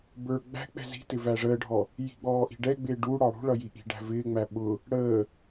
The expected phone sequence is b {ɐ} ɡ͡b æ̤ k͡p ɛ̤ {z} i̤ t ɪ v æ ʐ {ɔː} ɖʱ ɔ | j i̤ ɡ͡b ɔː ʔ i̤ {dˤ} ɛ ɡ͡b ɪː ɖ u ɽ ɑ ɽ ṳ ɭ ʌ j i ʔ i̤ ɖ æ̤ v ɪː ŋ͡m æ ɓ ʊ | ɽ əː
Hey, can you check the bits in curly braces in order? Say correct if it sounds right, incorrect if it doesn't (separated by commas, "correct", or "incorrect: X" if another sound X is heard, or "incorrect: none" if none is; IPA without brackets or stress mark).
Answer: incorrect: ə˞, correct, incorrect: əː, incorrect: ɖ